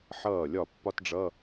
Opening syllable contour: falling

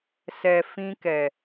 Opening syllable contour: low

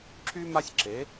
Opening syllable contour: high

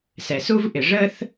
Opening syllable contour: low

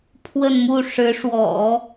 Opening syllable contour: falling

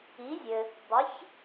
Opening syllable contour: rising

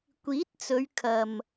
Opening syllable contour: rising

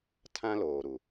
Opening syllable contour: high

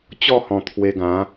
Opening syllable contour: falling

